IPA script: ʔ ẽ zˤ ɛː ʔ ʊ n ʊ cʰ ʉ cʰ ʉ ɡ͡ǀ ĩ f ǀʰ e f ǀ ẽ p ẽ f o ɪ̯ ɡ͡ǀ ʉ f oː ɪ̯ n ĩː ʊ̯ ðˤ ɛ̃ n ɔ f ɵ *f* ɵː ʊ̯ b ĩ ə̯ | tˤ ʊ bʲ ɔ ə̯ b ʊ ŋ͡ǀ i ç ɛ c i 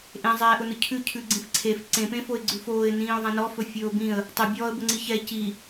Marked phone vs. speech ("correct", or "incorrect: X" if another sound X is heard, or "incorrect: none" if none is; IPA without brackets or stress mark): incorrect: fʲ